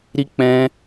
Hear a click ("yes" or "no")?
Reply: no